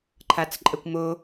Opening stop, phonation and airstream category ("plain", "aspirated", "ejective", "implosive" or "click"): click